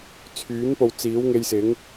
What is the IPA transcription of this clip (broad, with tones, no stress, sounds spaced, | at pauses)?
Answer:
t͡sʰ yː˨˥ n p o˨ w t͡s iː˨˥ w ŋ e˧ j s ɪ˨˥ ŋ